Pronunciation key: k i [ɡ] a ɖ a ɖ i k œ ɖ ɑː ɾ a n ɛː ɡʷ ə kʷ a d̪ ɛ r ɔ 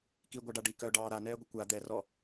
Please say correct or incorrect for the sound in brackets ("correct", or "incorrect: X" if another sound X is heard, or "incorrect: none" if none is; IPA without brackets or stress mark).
incorrect: ɡʷ